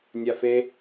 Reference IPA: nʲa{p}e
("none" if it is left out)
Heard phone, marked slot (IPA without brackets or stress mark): f